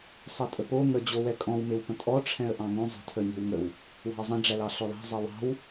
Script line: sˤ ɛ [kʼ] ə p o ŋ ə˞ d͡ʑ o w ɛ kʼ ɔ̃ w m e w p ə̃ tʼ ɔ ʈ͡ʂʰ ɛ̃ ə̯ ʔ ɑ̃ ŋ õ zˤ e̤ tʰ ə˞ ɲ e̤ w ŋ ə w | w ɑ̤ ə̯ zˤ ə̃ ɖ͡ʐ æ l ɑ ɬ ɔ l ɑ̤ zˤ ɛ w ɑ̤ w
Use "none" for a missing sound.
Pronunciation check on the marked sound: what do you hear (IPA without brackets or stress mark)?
tʼ